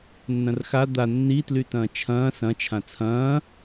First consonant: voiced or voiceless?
voiced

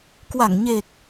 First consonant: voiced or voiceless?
voiceless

